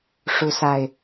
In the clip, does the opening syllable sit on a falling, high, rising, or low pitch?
rising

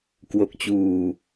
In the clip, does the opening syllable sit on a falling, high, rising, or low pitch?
low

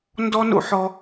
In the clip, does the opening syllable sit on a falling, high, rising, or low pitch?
high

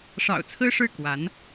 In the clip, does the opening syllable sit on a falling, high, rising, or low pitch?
low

